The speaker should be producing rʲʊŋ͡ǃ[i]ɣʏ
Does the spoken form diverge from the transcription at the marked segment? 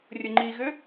no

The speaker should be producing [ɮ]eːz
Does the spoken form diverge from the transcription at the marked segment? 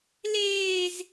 yes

